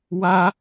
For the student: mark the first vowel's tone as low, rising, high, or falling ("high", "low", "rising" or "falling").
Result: high